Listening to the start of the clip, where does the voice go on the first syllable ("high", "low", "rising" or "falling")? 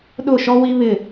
falling